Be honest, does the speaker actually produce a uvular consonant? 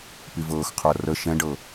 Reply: yes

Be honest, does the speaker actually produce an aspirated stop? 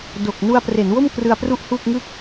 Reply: no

